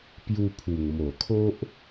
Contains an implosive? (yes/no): no